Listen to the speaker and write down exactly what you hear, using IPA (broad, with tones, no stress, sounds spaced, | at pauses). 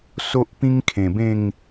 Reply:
s o˦ ʔ p ĩ˦ ŋ kʰ ẽ˨˩ b ẽ˥˧ ŋ